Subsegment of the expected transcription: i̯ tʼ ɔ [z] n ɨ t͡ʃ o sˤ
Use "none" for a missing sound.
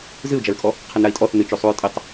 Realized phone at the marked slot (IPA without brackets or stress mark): θ